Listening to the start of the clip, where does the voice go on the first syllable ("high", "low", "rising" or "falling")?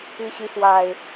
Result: rising